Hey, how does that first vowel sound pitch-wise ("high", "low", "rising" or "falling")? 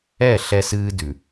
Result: falling